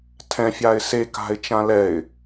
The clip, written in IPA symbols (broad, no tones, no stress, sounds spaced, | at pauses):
tʰ ɛ̃ fʲ a ɪ̯ s e k a̤ ɪ̯ t͡ʃ ã l ɛ ɪ̯